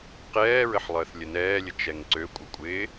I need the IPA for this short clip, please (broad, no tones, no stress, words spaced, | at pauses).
qɛːɹəħ lˠəːθlʲənɛːlʲə t͡ʃɛŋǀøkʷʼə kʷʼɪː